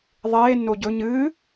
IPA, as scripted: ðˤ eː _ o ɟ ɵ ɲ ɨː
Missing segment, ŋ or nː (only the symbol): nː